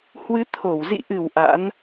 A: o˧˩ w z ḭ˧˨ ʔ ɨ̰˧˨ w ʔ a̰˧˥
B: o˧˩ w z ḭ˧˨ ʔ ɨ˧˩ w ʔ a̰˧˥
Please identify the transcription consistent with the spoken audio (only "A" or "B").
B